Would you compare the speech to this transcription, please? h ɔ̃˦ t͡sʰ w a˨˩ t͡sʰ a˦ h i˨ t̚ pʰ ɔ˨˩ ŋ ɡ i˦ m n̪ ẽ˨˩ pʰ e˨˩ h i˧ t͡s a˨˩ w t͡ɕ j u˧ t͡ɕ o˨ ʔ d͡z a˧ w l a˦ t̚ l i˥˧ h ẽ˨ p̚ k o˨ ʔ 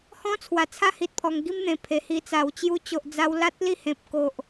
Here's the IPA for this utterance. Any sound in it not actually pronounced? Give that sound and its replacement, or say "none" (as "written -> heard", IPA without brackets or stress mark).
none